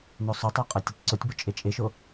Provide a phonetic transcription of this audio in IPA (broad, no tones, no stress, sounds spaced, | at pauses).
n o sˤ o tˤ o qʼ a tʲ o tʲ ǀ o tʲ b o t͡ʃʼ e t͡ʃʼ e ʃ o